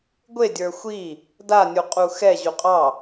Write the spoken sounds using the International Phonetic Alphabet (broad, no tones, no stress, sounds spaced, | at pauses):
ɡʷ e dʲ ə˞ xʷ i | d a nʲ u qʼ u x ɛ ʑ u qʼ ɑ